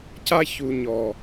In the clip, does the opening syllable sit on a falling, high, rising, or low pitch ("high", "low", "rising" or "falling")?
high